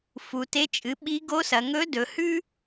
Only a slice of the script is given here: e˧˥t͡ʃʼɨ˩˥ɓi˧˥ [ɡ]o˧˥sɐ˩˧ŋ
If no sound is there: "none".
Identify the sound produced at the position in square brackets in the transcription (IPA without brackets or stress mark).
ɡ